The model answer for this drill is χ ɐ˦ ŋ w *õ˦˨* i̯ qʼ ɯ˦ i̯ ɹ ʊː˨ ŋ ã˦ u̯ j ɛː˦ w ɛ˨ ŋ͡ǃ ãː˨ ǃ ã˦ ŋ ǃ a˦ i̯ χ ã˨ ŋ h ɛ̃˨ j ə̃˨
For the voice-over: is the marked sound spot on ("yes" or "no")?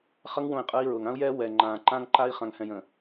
yes